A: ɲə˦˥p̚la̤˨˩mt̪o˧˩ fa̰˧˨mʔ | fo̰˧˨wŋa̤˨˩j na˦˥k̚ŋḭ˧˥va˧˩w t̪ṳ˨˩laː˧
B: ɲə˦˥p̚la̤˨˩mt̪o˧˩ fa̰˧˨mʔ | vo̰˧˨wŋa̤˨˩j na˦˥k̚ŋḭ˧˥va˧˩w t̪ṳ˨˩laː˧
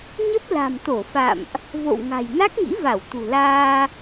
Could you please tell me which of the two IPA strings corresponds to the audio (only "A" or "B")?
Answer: B